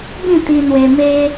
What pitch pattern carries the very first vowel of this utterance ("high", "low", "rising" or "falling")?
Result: falling